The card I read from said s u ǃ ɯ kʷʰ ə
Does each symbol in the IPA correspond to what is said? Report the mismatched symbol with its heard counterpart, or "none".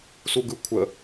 ǃ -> ɡ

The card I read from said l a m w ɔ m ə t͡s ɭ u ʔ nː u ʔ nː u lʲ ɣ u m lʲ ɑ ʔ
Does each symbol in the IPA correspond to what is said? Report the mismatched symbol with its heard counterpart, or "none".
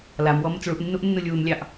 ɣ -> w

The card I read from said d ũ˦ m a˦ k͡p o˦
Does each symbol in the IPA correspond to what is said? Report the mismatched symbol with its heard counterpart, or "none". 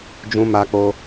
d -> d͡ʒ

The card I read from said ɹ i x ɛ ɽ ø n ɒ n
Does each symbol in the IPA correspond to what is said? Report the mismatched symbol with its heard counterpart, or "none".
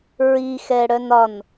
ø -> œ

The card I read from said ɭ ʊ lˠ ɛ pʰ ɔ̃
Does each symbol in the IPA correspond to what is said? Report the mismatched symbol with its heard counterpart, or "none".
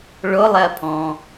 none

